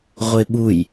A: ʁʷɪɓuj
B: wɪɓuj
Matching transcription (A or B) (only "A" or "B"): A